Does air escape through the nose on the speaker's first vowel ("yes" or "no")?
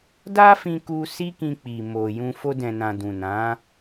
no